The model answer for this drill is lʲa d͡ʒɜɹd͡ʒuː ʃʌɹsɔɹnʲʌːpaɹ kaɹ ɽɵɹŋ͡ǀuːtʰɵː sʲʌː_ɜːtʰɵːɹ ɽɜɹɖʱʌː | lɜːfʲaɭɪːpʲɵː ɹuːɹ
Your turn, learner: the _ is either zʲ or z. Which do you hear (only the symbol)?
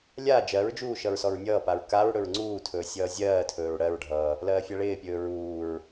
zʲ